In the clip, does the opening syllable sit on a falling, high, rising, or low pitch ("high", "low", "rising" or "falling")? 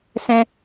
high